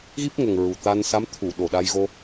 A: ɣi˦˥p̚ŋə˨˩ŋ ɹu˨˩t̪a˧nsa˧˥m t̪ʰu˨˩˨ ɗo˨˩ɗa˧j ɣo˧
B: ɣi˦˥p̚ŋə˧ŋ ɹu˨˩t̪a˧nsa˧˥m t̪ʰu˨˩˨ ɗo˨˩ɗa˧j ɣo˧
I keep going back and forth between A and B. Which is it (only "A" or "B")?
A